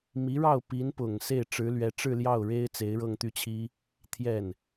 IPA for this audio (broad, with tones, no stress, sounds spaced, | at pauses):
m i˧˥ ɻ ɑ˥˩ ʊ̯ p i˧˥ n p ʊ˨˩ ŋ s e˥˩ ɪ̯ ʈ͡ʂ ɻ̩˧˥ l ɥ ɛ˧˥ ʈ͡ʂ ɻ̩˥˧ l j ɑ˥˩ ʊ̯ ɻ e˥ ɪ̯ t͡s e˧˥ ɪ̯ ɻ ɤ˥˧ ŋ t̪ y˥˩ t͡ɕʰ i˥ | t̪ʰ j ɛ˥˩ n